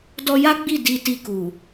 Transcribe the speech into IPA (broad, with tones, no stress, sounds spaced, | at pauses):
d ɔ˧ j a˦ ɡ͡b i˦˨ d i˧ t i˧ k u˨